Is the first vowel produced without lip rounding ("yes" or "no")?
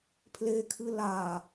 yes